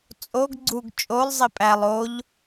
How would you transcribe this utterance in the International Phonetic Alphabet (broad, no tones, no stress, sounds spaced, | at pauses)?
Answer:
t͡sʼ o ɡ ɡ͡ǀ u ɡ t͡ʃʼ o lˠ zˤ i pʼ æ lˠ o ʎ